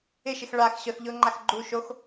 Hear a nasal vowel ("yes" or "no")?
no